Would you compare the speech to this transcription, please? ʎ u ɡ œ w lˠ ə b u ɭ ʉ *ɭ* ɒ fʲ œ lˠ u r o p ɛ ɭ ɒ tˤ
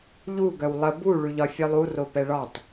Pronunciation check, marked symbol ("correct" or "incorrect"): incorrect